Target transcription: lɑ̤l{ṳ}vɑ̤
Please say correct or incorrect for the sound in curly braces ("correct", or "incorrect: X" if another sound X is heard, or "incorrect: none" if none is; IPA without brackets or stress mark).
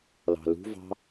correct